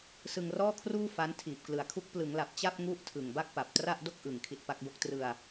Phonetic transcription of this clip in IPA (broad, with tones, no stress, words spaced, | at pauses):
sɯ˧ŋrɔː˥˩kʰruː˥˩ fa˦˥n tʰiː˨˩p̚klɯ˨˩a̯kʰu˦˥k̚ plɯ˩˦ŋla˨˩p̚ t͡ɕa˥˩p̚ŋu˦˥ʔ tʰɯ˨˩ŋba˥˩k̚ pa˨˩p̚tra˥˩ʔdo˥˩k̚ʔɯ˨˩ŋ kʰi˦˥t̚pa˦˥k̚bo˥˩k̚ trɯ˧a̯